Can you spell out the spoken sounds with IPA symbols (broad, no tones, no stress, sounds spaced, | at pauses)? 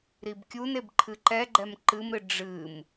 ɾ i b kʲ u n e b ǃʰ ɨ ǃ ɛ ɡ͡ǃ ɛ m ǃ ɨ m ɾ ɨ ɖ͡ʐ ɨ m